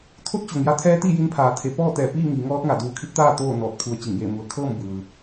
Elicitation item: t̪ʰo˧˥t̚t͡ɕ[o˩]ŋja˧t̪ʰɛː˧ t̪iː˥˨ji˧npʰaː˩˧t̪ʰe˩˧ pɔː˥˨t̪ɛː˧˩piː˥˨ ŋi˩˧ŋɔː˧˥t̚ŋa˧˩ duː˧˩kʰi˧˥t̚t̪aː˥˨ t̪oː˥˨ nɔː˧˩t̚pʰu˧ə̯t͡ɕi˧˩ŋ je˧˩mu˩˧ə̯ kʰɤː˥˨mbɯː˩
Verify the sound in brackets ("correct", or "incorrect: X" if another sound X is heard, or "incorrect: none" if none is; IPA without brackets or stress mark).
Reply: correct